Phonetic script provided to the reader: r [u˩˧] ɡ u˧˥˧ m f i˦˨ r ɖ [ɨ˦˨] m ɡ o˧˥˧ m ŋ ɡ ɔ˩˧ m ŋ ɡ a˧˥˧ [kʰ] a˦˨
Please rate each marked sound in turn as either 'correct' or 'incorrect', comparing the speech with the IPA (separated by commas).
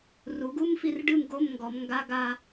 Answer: correct, correct, incorrect